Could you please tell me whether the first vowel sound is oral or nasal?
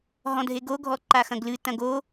nasal